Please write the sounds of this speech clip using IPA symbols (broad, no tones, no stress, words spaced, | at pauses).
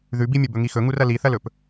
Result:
ðʉbimʲɵ bɵŋixɵŋur ɐliθɐlɵp